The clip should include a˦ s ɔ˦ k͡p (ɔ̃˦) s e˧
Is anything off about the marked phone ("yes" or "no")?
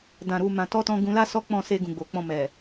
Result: yes